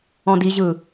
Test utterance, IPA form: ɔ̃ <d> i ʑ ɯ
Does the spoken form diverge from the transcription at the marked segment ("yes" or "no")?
no